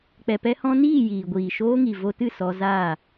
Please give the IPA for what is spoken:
k͡p ɛ˨ p ɛ˧ h ɔ̃˧ n iː˦˨ j iː˨ ɡʷ iː˨ ʃ oː˧ ŋ i˨ v o˧ t ɨ˦˨ s ɔ˧ z aː˦˨

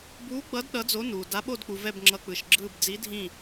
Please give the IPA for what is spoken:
b uː˨˥ ɡ͡b ʌ˨˥ d ɗ ʌ˨˥ d͡z o˨˥ n uː˨ d a˨˥ ɓ o˦˨ d k͡p u˨ v ɛ˦˨ b ŋ͡ǁ ʌ˨˥ k͡p ɯ˨ ʃ ɡ͡ǁ ɯː˦˨ b d͡z i˨˥ dʱ ĩ˦˨

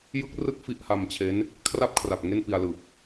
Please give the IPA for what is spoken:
j ɯ˦˥ k̚ r ɯ˥˩ k̚ f i˥˩ ʔ h a˧ m t͡ɕʰ e˦˥ n | kʰ r a˥˩ p̚ kʰ r a˨˩ p̚ ŋ e˥˩ n p i˧ a̯ l ɯ˨˩ k̚

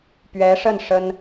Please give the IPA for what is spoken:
p ɥ ɛ˧˥ ʂ ə˥˩ n ʂ ə˥ n

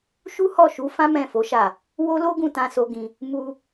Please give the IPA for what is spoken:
ʃ u˦ h ɔ˦˨ ʃ u˨˦ f ã˦ m ɛ̃˦˨ f o˨˦ ʃ a˦˨ | w o˦ l o˦ ɡ ũ˦˨ t ã˧ s o˧ ɡ ĩ˧ | m u˧

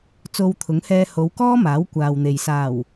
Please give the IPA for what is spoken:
t͡s o˧ w t̪ʰ ʊ˨˥ ŋ h ɛː˧ h o˨˧ w k ɔː˥ m aː˨˥ w kʷ aː˨ w n̪ e˨ j s aː˨˩ w

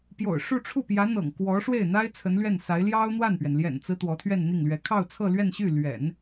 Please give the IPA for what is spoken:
p j o̰˨˩ ʊ̯ ʂ u˥˧ ʈ͡ʂʰ u˥˩ p j ä˧˥ n̪ ɤ̰˨˩ ŋ k w ɔ˧˥ ʂ w e˥˩ ɪ̯ n̪ a˥ ɪ̯ t͡sʰ ə˧˥ n l ɥ ɛ˥˩ n s a˧˥ ɪ̯ l j ɑ˥ ʊ̯ n̪ w a˥˩ n p ɥ ɛ˩ n l j ɛ̰˨˩ n t͡s ɹ̩˦ t̪ w ɔ˧˥ t̪ʰ ɥ ɛ˥˧ n n̪ i˥˩ ŋ l ɥ ɛ˧˥ kʰ ɑ˥˧ ʊ̯ t͡sʰ ɤ˥˧ l ɥ ɛ˥˧ n ɕ y˥˩ l ɥ ɛ̰˨˩˦ n

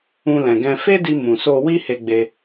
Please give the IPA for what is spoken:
ũ˧ l ɛ̃˨ ɡ ɛ̃˧ f e˦ d i˧ m ũ˨ s o˧ w i˦ h e˧ ɡ͡b e˧

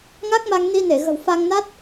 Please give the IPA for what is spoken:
ŋ a˦˥ k̚ m a˧ ŋ n i˧ n e˧˩ ɣ ə̤˨˩ w f a˧ ŋ n a˦˥ t̚

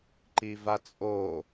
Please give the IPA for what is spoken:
ǃ i v a t͡sʼ o

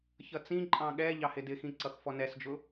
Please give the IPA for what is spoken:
ç ʌ t͡s ĩ ǃʼ ɑ̃ ɠ ɛ ʎ ɑ h ɪ d ɪ x ĩ ǀ ʌ x f ɔ n ɛ s d͡ʒ ʊ

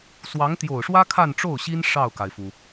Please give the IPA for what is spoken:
s w ɑ˧˥ ŋ t̪ j o˨˩ ʊ̯ ʂ w ä˥ kʰ a˥˧ n ʈ͡ʂ o˥˩ ʊ̯ ɕ i˥ n ʂ ɑ˥˩ ʊ̯ k a˩ ɪ̯ f u˩

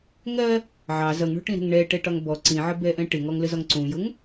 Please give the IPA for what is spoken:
ŋ ɜ | ʕ ɑ z ʌ ŋ ɳ ɔ̤ ʈ ĩ ɾ ɛ̤ ŋ ɳ ɛ ʈ ɛ ʈ ɒ ŋ b ɔ ǀ ĩ ʕ ə b ɛ ʔ ɛ̃ ʈ ɪ ŋ ɔ ŋ l ə z ɒ ŋ ǀ ũ j ʊ ŋ

